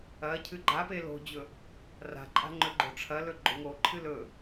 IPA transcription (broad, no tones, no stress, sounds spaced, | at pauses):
ɐ cʰ ɨ ɡ͡ǃ a p e l o̤ d͡ʑ ɵ | r a̤ ǃʼ a̤ ŋ͡ǃ ɵ ɡ͡ǃ o̤ ʈ͡ʂʰ ɐ l ɵ ɡ͡ǃ o̤ ŋ o ǃʰ ɨ l ɵ